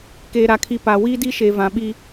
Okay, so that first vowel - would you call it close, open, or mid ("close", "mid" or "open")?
mid